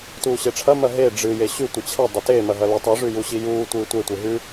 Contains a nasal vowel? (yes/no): no